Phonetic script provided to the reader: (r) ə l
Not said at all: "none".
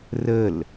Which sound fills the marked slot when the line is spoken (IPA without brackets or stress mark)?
r